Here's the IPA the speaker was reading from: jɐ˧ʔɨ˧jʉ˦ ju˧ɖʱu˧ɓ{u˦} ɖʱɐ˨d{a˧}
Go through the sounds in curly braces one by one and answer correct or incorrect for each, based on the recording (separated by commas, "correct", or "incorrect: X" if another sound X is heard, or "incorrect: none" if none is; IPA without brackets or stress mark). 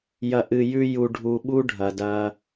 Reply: correct, incorrect: ɐ˧